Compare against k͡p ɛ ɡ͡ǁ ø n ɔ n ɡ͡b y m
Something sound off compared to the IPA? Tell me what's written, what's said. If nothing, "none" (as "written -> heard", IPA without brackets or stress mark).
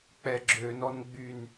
m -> n